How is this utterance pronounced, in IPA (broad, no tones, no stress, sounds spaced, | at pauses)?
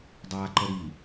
dˤ aː ǃ ə ɾ i